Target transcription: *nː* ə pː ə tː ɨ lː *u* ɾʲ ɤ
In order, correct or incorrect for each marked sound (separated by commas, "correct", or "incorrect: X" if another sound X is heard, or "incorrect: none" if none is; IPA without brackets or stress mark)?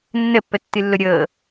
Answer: correct, incorrect: ʊ